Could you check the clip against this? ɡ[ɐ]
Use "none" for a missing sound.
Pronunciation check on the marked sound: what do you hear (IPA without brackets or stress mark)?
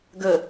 ə